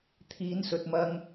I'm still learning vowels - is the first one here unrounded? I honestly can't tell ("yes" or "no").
yes